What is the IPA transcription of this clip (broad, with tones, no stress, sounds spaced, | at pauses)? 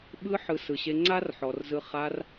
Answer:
ɓ ɯ˧ ħ ɯ˨ s ɯ˨ ɕ e˧ ŋ͡ǀ a˦ r ħ ɔ˨ r z ɯ˧ χ a˧ r